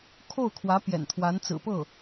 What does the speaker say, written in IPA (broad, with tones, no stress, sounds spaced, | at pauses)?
kʰ o˥˩ ʊ̯ kʰ w ä˧˥ p j ɛ̰˨˩ n t̪ʰ w a˧˥ n t͡s ɹ̩˨˩ p ɤ˥˩